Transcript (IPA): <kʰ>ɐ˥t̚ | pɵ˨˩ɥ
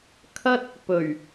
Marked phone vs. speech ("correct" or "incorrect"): correct